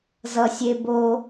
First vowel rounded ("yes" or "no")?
no